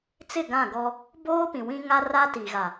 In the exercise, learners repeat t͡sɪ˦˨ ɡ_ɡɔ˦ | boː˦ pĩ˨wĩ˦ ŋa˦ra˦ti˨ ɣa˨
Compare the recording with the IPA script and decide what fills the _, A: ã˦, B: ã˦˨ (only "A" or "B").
B